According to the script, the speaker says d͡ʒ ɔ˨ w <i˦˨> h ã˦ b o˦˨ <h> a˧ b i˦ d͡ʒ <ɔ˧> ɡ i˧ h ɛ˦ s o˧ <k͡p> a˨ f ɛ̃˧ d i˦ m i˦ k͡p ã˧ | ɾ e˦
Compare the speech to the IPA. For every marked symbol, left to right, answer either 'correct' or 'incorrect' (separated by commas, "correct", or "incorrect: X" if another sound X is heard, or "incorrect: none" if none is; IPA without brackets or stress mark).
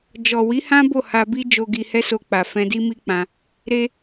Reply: incorrect: i˨˦, correct, incorrect: o˧, correct